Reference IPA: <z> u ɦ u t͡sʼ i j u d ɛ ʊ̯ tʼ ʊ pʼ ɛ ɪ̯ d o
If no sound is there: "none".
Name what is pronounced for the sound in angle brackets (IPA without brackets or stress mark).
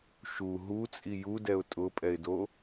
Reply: ʃ